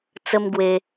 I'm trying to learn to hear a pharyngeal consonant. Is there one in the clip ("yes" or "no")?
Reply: no